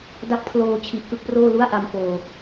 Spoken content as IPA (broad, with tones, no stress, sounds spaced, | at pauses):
d a˦˥ k̚ pʰ l oː˧ t͡ɕʰ i˨˩ ʔ k ɯ˥˩ k̚ p r oː˥˩ l u˥˩ a̯ ʔ a˧ m p oː˨˩